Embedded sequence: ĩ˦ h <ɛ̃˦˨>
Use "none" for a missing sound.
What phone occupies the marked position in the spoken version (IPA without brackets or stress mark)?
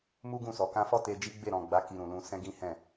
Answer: ɛ̃˦˨